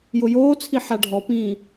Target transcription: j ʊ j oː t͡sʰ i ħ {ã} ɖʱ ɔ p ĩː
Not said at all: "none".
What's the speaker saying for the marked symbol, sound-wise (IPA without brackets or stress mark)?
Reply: a